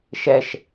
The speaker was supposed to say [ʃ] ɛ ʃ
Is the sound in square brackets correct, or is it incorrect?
correct